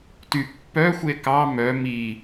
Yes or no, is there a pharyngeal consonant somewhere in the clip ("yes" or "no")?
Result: no